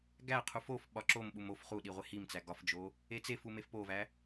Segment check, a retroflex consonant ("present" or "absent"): absent